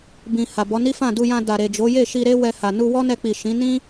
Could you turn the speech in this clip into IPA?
b ĩ˨ h a˨ b ɔ˨˦ n i˦ f ã˦˨ d u˧ j ã˧ d a˨ ɾ e˨ d͡ʒ o˨˦ j e˦˨ ʃ i˧ ɾ e˦ w ɛ˧ h a˨ n u˧ w ɔ˦ n ɛ˧ k͡p i˨ ʃ ĩ˨˦ n ĩ˦

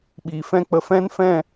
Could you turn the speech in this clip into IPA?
ɓ iː˨ f ɛ̃˦ k͡p ə˧ f ɛ̃˦ n f ɛ̃˦˨

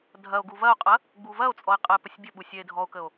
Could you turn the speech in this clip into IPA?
dʱ ɐ o̯ ɡ u v ɐ o̯ qʼ ɐ | ɡ͡b u v ɐ o̯ t͡sʼ ɔ e̯ qʼ ə e̯ p ə sʲ bʲ ə ɓ u sʲ ɛ e̯ dʱ ɔ o̯ k ə o̯

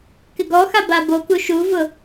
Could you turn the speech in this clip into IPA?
k ɪ ɡ ɔ x a b a b o k u ʃ u v ʊ

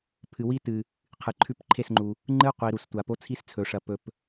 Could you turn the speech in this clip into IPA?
pʰ ɨ˨ w i˦ t ɨ˨ | qʰ ɨ˨ ǃʰ ʉ˧ p ǃʰ e˦˨ s ŋ͡ǃ u˨ | ŋ͡ǃ ɨ˦ qʷ i˨ ɾ u˨ s tʷ a˨ p o˦ t͡sʰ i˦ s t͡sʰ ɵ˨ ʂ ɐ˨ p ɵ˧ p

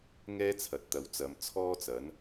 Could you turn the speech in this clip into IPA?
ŋ ɛː˥ t͡sʰ ɐ˨˥ t̚ t̪ ɐ˨˧ w t͡s ɐ˨˧ m t͡sʰ ɔː˥ t͡s ɐ˨˥ n

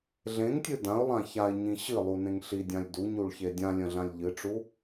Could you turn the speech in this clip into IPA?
ɮ ẽ ŋ tʲ ɨ d ã ʊ̯ lˠ ã ç a ɪ̯ ɲ ĩ ɕ ɨ lˠ u n ẽ ŋ ɬ i dʲ ã lʲ d u ɲ u ɭ ç e dʲ ã lʲ ə̃ ɮ ã lʲ ʎ ɨ ʈ͡ʂ u

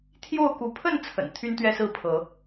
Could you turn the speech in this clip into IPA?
t̪ʰ j o˥˨ ʊ̯ k u˨˦ pʰ ə˥˨ n t͡sʰ ə̰˨˩ n t̪ʰ y˦ n t̪ ɥ ɛ˦ s ɹ̩˥˨ pʰ ɤ˨˦

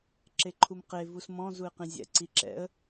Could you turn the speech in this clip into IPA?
ǁ e ǃʰ u m q e v u s m ɔ̃ z u ɪ̯ q ĩ zʲ ɛ̰ ǀ i ǁ ɛ̰ ə̯

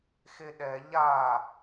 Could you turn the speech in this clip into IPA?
x e ɗ ɛ ʎ a

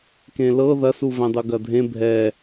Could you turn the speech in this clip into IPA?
k ẽ l ɤ ð ɐ s u v ɛ̃ dˤ u ɡ ɐ dʱ ẽ bʱ ɛ

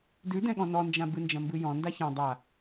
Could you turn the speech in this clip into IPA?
d ʉ d ɛ̃ ɠ ɔ̃ n ɔ n d͡ʒ ã b ɨ n d͡ʒ ɐ̃ m b ɨ j ɔ̃ n d a ç ã dˤ a

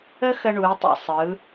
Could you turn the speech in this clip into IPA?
ə˥ x ə˧ ɳ u˩˧ i̯ tˤ ḭ˩ sˤ ɯ˩˧

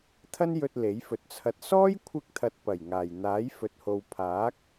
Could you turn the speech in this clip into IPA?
t̪ʰ ɐ˥ n j ɵ˧ t̚ l e˨˥ j f ɵ˨˥ t̚ t͡sʰ ɐ˧ t̚ s ɔː˥ j kʷʰ ɪ˧ k̚ t̪ʰ ɐ˨ t̚ p ɐ˨˩ j ŋ aː˨˩ j n̪ aː˨˥ j f ɵ˨ t̚ h o˨ w pʰ aː˨˥ k̚

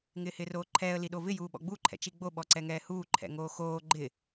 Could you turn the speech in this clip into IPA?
ŋ ɪː h ɪː r oː ǃʰ ɛː ə̯ l i ɗ o v ɪ j uː ɓ ɔ̰ ɡ͡b u ǃʰ ɛ̰ t͡ʃ i ɡ͡b o ɓ ɔ ǀ ɛ ŋ ɛː h uː ǃʰ ɛ̰ ŋ oː x oː ɡ͡ǃ ɪ

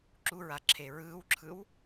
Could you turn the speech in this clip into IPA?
ǁ u ɹ a ǁʰ eː ɹ ɯː w ǁʰ ɯ w

